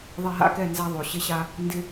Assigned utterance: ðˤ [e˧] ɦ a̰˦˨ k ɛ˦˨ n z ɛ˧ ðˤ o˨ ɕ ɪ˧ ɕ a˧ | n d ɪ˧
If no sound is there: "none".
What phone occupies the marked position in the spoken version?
e˧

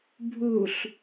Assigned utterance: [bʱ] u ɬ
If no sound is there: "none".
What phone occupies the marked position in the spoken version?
bʱ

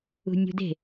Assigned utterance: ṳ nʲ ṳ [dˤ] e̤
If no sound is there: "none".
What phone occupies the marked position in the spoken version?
d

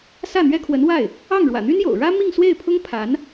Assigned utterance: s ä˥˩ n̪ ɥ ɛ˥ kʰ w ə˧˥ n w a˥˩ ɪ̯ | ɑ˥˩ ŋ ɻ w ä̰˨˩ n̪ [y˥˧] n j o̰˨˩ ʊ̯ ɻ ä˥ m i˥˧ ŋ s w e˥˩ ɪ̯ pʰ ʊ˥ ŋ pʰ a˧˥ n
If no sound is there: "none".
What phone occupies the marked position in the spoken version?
y˥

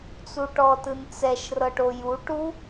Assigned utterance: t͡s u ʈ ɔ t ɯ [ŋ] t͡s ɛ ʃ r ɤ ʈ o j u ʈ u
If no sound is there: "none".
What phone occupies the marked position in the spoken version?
n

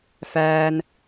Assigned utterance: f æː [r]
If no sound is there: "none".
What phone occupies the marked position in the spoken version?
n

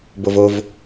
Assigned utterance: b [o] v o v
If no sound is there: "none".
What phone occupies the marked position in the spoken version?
o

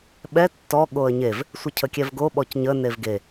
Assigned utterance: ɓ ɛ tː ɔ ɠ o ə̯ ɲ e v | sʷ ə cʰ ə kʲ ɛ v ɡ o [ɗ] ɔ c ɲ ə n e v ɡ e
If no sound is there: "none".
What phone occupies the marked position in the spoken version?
ɓ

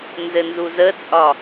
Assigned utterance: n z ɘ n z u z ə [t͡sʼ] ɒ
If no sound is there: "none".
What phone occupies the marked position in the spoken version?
t͡sʼ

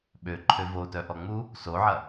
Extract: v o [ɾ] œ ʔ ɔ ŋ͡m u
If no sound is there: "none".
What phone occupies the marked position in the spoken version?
t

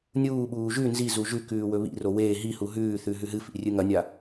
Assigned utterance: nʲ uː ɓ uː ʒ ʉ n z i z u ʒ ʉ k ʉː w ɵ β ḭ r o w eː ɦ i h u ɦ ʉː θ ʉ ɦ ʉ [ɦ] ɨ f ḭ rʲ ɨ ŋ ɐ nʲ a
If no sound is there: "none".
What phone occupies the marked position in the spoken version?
ɦ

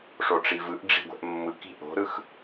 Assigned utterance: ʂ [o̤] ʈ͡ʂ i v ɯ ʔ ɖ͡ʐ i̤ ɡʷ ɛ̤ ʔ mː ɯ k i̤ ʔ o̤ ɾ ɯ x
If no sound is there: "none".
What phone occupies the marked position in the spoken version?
o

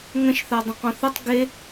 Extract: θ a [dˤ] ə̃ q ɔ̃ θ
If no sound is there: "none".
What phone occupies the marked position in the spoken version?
dˤ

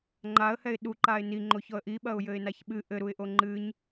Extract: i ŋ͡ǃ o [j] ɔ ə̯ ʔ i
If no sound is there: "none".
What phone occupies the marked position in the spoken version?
ç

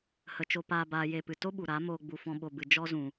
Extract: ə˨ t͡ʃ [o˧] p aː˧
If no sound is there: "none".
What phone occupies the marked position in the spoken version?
o˧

